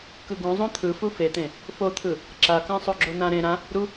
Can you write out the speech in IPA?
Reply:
kɯɡũ zˤõt̪ʰɯ fufet̪ẽ | fot̪ʰɯ | ǁakãsˤo ɡ͡ǁonã ɾẽ ɾã | ɾu

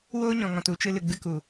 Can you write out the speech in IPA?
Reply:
woː˦ɲɔ̃˨ŋɔ̃˨t u˦t͡ʃɨ˧ lɨ˨ɡ͡bɨ˦ku˨

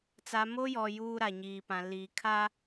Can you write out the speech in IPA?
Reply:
t͡sa˦ mo˦jɔ˨ juː˦ɾa˨ ɲiː˨pã˨liː˨ kʰa˦

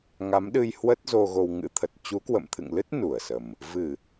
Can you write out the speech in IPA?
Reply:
ŋa˨˦mɗɨ˧j hwə˦˥t̚ zo˧ɣo˧w ŋɨ̰˧˥t̪ʰə˨˩t̚ t͡ɕu˨˦kwə̰˧˨mt̪ʰɨ̰˧˨ŋlɨ˦˥t̚ nu˧˩ə̯sə˨˩m | vɨ˧˩˨

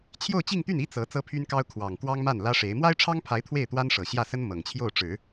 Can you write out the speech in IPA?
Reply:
t͡ɕʰjo˥˧ʊ̯t͡ɕi˥˧ŋt̪y˥˩ni˥ t͡sɤ˧˥ t͡sɤ˥pʰy˥nkɑ˥ʊ̯ kʰwɑ˨˩ŋ kwɑ˥ŋma˥˩n lä˥ʂe˧˥ɪ̯ mwa˥ɪ̯ʈ͡ʂʰɑ˥ŋpʰa˧˥ɪ̯ t̪ʰwe˥˩ɪ̯t̪wa˥nʂɤ˨˩ ɕjä˥˩sə˥n mɤ˨˩ŋt͡ɕʰjo˥˩ʊ̯ ʈ͡ʂɻ̩˨˩˦

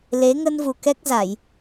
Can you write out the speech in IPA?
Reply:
le˨˦ ŋə˧nvu˨˩ kɛ˦˥k̚za˧˩˨j

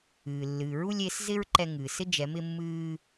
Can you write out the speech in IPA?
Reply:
ɨː˩lːɨː˩ɹu˧lʲe˩˧s zɪ˥ɹǃɛ˧ŋɨː˩ sɪ˥d͡ʒɛ˩˧ mɪ˧mːɨː˧

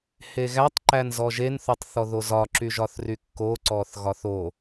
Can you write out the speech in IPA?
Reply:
heɣætˤ ǃænzɔʒen θotˤθɔðozɒ ǁyʒɒθrykːo ǀɔθɣɒθo

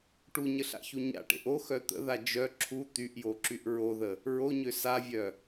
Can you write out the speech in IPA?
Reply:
ʈuɲəɬa̰çu ɲa̰ʈḛʔ oxœ t̪ə̰ða d͡ʒœ ǁʰu t̪yʔjoǁyʔ ɹoðə | ɹoɲø savʲœ

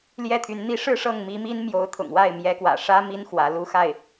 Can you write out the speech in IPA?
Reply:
ljɛ˥˩t̪ʰy˧˥n n̪i˧˥ʂɻ̩˥˧ ʂɤ˥˩ŋmi˧˥mi˥n mjo˧˥ʊ̯t̪ʰʊ̰˨˩ŋwa˥˩ɪ̯ mjɛ˧˥kwä̰˨˩ʂä˥ mi˥n xwä˧˥lu˥xa˥˩ɪ̯

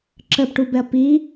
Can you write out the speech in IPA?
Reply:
ǁəpʈubɛɐ̯ pi

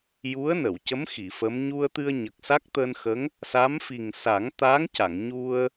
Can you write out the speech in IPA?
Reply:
ju˧˥ə̯nə˨˩˨wcə˧˥m xi˨˩˨fə˧˥m ɲu˧ə̯t̪ɨ˧ə̯ɲə˨˩k̚ sa˦˥k̚t̪əː˧nxə˧˥ŋ | sa˧˥mfi˨˩ŋ sa˨˩˦ŋt̪aː˧˥ŋca˨˩˨ŋ ɲu˧ə̯

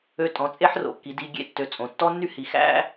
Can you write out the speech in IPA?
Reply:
ø˧ tʼɔ̃˩˧t͡sʼe˥ħro̰˩˧ kːi˩˧di˧ɡʲḛ˥ tːø˩˧ t͡sʼõ˩ tːɔ˥nːy˥hi˩˧ xæ̰˥

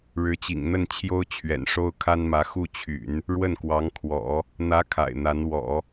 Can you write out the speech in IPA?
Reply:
ɻɻ̩˧˥t͡ɕḭ˨˩ŋn̪ə˥˩n t͡ɕʰjo˥ʊ̯ t͡ɕʰɥɛ̰˨˩nʂo˥ʊ̯kʰa˥nmä˧˥ xu˥˩t͡ɕʰy̰˨˩˦n | ɻwə˥˩nkwɑ˧˥ŋkʰwɔ̰˨˩˦ | n̪ä˧˥ kʰa̰˨˩ɪ̯n̪a˧˥n wɔ̰˨˩˦

